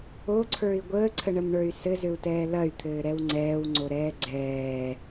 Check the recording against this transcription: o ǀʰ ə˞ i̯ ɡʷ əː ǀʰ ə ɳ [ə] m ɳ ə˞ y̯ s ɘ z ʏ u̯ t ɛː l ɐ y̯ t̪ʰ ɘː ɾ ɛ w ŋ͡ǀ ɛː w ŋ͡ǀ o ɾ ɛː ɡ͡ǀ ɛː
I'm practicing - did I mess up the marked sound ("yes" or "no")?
no